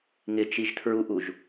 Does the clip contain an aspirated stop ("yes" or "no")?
yes